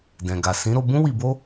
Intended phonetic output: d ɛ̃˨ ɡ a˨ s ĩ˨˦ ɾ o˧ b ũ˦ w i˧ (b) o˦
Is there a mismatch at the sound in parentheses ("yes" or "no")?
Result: no